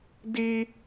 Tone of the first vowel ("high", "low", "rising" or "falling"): high